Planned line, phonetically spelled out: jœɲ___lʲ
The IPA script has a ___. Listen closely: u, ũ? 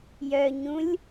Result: ũ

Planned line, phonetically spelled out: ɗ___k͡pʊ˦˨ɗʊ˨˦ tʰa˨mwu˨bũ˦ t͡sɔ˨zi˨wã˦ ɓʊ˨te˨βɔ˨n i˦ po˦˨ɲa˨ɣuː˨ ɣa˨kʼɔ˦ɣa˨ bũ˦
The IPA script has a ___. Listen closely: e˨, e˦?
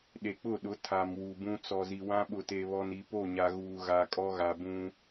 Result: e˨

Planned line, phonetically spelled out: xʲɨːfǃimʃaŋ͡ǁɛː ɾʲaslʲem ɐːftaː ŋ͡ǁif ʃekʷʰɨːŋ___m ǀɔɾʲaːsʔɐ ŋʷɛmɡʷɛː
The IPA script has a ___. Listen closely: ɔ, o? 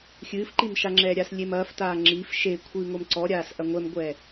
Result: o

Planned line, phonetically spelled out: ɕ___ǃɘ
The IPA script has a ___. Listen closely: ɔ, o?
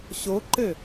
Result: o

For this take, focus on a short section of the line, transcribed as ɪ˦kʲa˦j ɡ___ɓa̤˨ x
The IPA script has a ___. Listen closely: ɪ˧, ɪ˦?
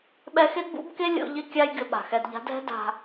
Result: ɪ˧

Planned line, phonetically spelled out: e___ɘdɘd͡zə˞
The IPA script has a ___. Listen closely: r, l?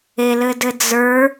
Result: l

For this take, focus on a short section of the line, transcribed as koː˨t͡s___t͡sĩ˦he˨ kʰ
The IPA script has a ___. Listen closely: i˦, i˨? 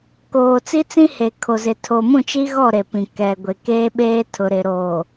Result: i˦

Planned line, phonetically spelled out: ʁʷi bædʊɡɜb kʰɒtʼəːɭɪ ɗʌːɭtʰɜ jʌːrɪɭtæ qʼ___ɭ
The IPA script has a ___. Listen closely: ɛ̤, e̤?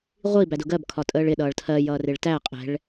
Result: ɛ̤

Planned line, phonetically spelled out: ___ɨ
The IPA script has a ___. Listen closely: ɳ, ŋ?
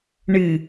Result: ɳ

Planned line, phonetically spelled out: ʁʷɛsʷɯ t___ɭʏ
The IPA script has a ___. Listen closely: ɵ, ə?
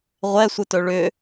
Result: ɵ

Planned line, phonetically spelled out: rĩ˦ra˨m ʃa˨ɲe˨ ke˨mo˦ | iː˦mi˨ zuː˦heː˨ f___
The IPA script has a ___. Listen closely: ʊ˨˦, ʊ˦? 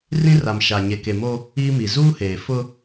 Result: ʊ˦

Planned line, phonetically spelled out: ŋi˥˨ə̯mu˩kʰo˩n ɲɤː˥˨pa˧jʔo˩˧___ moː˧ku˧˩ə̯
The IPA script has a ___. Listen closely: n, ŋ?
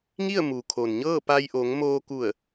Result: ŋ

